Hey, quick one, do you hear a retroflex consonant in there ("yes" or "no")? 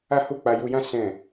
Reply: no